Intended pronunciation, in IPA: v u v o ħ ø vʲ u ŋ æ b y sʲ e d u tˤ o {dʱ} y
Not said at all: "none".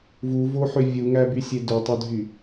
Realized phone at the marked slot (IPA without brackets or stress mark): dʱ